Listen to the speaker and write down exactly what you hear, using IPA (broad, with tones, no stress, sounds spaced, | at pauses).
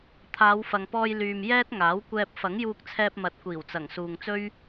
t̪ʰ aː˨˧ w f ɐ˨ ŋ p ɔː˧ j l yː˨ m j ɛː˥ t̚ ŋ aː˨˥ w kʷ ɛː˧ p̚ f ɐ˨˥ ŋ j uː˧ k̚ t͡sʰ ɛː˧ p̚ m ɐ˨˥ t̚ kʷ iː˨˩ w t͡s ɐ˨˩ ŋ s uː˨ ŋ t͡s ɵ˥ ɥ